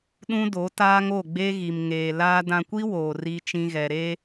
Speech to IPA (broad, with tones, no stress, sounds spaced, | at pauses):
ɗ ũ˦ d o˨˦ t aː˦ ŋ o˦˨ ɡ͡b e˦ ɣ i˨ m ŋ eː˨ l aː˦ d ã˨ kʷ i˦ w oː˨ r i˦ t͡ʃ ĩ˦ ɣ ɛ˨ ɾ e˦